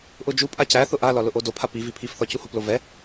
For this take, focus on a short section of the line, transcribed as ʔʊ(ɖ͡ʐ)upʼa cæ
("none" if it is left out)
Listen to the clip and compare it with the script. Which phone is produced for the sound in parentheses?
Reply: d͡ʒ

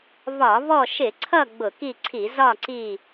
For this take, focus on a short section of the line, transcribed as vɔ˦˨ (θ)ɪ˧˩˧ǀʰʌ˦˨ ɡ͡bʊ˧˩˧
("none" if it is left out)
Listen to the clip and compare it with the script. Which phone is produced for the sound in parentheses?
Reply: ʃ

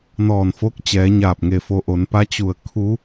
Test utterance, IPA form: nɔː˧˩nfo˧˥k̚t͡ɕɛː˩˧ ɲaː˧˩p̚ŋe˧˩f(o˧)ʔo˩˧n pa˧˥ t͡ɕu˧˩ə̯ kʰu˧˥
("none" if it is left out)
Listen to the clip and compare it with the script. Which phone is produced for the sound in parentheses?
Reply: o˧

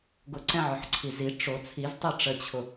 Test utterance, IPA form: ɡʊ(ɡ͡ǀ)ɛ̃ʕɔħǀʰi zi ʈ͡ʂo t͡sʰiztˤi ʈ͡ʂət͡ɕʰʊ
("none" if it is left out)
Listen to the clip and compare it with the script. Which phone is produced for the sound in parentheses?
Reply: ǀ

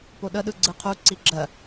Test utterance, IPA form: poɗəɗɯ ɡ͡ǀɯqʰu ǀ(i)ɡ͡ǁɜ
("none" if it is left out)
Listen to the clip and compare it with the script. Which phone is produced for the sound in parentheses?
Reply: i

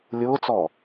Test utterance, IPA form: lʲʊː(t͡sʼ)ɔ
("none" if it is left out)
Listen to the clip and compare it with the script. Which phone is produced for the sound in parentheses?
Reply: t͡s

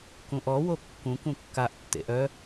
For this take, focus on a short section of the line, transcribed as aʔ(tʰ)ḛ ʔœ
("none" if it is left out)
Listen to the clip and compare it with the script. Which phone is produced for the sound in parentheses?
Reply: tː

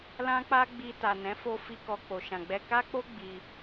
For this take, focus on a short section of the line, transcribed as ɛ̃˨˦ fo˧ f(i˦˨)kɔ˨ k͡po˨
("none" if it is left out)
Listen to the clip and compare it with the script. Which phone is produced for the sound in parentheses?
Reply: i˧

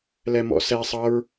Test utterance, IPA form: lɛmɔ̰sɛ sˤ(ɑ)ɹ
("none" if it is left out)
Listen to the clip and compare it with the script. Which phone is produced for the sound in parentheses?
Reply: ʌ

